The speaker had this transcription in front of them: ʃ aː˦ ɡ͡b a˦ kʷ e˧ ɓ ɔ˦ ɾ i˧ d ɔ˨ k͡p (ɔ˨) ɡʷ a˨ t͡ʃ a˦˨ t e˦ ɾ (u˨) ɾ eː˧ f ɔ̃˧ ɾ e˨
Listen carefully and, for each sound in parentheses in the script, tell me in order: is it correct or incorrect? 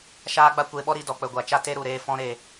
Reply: incorrect, correct

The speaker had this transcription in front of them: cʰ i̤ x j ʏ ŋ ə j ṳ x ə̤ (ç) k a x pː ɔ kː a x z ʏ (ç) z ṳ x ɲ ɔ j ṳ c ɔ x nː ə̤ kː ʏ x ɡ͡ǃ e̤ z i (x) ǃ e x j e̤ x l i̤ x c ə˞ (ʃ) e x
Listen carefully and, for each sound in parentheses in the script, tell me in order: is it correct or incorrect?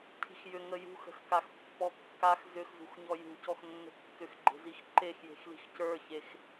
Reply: incorrect, incorrect, correct, incorrect

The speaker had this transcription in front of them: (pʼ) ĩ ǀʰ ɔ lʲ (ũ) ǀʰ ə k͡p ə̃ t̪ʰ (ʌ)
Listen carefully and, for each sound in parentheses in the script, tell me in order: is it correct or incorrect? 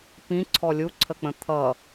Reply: incorrect, incorrect, correct

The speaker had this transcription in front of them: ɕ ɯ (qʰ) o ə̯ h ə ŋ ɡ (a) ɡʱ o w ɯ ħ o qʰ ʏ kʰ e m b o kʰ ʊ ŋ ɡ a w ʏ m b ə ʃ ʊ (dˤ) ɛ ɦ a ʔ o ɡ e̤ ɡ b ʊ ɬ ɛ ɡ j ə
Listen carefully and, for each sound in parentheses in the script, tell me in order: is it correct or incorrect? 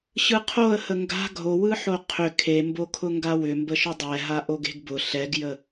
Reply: correct, incorrect, correct

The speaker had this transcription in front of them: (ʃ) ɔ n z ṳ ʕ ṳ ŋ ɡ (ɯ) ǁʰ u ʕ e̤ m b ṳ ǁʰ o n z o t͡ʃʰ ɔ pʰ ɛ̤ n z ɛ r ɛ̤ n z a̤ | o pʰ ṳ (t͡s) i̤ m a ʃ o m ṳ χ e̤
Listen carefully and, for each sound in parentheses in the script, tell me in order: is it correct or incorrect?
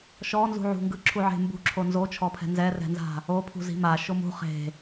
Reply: correct, correct, incorrect

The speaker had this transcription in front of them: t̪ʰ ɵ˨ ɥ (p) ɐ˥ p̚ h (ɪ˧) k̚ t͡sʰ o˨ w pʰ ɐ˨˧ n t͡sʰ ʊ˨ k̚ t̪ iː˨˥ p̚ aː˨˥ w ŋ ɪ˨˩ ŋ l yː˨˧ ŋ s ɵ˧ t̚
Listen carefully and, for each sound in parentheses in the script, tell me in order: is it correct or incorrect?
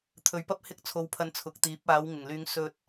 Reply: correct, correct

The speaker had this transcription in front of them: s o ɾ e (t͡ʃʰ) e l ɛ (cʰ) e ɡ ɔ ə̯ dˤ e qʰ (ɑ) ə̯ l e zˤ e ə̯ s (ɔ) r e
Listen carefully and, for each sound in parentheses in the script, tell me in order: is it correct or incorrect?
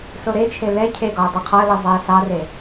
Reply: correct, correct, incorrect, incorrect

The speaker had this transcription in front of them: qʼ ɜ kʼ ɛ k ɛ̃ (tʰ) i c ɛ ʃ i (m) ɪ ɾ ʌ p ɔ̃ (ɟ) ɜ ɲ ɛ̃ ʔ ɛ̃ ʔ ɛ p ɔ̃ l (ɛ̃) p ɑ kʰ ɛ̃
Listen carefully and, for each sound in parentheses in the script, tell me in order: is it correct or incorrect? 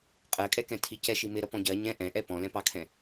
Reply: correct, correct, correct, correct

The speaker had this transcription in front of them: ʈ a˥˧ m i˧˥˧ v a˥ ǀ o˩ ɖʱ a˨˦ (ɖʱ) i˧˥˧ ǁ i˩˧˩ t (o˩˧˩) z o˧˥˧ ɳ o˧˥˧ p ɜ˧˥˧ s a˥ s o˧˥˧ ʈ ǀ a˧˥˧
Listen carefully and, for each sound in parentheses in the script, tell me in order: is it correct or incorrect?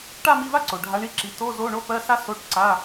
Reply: incorrect, incorrect

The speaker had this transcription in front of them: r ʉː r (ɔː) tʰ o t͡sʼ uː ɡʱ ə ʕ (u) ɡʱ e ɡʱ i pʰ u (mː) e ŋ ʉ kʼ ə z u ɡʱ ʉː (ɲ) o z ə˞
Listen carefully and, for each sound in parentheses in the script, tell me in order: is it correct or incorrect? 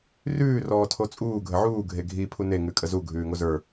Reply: correct, incorrect, incorrect, incorrect

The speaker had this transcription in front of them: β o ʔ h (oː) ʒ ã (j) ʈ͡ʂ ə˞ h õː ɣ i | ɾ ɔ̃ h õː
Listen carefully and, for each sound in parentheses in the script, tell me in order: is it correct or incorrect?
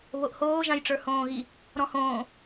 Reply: correct, correct

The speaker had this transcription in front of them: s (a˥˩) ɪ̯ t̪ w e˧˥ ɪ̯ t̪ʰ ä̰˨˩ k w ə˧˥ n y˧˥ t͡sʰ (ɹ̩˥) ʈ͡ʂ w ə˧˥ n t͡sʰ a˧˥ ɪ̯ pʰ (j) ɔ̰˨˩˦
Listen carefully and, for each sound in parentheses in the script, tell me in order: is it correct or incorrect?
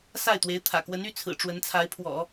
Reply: correct, incorrect, incorrect

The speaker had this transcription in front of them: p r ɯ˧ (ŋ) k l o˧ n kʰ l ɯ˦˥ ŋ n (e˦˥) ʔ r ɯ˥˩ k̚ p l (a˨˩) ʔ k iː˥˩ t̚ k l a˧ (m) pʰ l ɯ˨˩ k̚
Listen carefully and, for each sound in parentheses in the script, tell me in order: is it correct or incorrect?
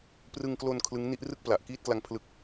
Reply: correct, incorrect, correct, incorrect

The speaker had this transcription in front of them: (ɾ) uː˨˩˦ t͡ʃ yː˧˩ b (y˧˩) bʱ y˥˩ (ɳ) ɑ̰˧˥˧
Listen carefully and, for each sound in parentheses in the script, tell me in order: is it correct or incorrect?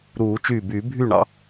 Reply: correct, incorrect, correct

